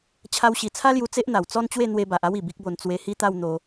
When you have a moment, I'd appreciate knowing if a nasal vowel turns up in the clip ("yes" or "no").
no